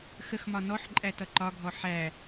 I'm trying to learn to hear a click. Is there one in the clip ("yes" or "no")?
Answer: yes